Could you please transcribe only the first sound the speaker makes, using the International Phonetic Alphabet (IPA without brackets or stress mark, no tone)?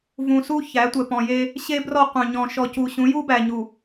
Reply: v